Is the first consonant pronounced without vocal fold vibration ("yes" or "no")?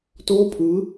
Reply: yes